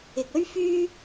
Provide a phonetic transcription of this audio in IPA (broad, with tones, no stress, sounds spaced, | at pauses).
ɪ˨ k̚ ɵ˥ ɥ f yː˥